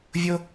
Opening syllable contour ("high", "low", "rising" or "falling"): high